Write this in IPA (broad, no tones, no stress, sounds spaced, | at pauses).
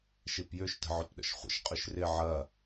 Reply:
ʃ i p j ʏ ʃ t ə̤ ʕ ø p ɗ ə̰ ʃ χʷ ə̰ ʃ qʼ ʏ ʃ r ɪ ʕ ɐ